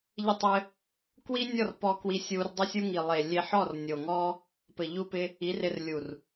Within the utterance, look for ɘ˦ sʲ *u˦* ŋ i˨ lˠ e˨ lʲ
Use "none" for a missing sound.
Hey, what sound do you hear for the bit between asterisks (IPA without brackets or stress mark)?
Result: u˦